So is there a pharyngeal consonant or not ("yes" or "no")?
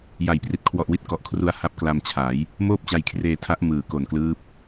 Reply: no